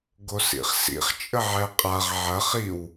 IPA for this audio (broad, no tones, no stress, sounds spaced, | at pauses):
ɡ o s ḭ χ s ḭ χ t͡ʃʼ ə ʕ ɛ qʼ a ʁ ʕ ɐ χ i w